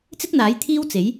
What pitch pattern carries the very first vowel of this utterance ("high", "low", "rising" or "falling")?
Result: high